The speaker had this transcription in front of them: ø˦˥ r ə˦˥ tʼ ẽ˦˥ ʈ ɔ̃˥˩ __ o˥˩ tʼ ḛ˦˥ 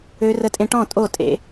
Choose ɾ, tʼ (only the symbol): tʼ